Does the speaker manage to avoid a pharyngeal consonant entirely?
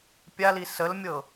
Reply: yes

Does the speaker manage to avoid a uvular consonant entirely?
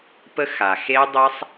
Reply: yes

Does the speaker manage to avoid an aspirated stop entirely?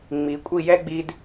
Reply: yes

